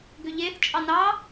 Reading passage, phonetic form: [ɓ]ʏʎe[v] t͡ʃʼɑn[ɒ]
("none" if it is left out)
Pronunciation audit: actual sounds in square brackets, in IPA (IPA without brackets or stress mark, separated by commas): ɡ, θ, ɑ